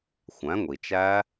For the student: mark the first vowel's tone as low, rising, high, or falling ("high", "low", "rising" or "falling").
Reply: rising